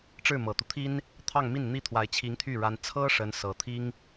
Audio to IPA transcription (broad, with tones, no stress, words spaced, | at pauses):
ʈ͡ʂɻ̩˥˩mɤ˨˩t̪u˦t̪ʰi˥n | t̪ʰɑ˥˧ŋmi˥˩nn̪i˥t̪ʰwa˧˥ɪ̯ t͡ɕʰi˧˥ŋt̪ʰy˥˩ ɻa˥n t͡sʰɤ˥ ʂə˥n sɤ˨˩ t̪ʰi˥ŋ